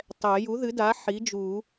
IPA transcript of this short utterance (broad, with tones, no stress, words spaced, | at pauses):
tˤɛ˨˩˦ ju˩˥ðɨ˩˥da˩˥ ħi˩˥d͡ʒu˨˩˦